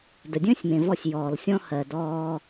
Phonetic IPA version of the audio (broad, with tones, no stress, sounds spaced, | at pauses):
d ə˨ dʲ ə̃ː˦ sʲ m ẽ˨ v ɔ˧ sʲ j ɔː˨ l sʲ ɔ̃˦ h ɜ˨ d ɔː˧